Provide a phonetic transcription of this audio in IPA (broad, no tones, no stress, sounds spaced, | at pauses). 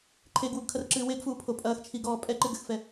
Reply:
ǃʰ e ɡ w u ɡ kʰ ɐ r ǁ ɨː w e ɡ f uː pʰ o pʼ ɐː x t͡ʃʰ i ɡ ɔː pʼ ɛ ǃ ɨ ɡ ɘ x f ɛ